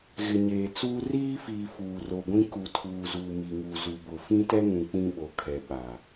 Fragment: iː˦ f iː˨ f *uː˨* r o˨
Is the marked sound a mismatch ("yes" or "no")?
no